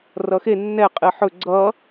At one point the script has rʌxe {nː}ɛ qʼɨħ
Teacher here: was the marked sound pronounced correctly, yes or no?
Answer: yes